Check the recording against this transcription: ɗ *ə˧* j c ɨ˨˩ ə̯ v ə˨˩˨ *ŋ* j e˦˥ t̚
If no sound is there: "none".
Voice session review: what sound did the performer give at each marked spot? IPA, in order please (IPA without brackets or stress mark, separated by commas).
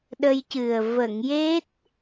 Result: ə˧, ŋ